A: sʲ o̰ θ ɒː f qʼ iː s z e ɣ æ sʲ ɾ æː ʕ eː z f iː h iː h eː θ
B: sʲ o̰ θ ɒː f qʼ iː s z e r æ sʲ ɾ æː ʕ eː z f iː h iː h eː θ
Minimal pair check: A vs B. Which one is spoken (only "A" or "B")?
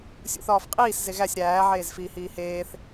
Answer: A